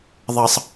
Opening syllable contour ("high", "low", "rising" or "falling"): high